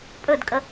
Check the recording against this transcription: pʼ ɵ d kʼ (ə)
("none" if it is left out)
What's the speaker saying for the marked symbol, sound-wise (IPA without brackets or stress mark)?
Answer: ə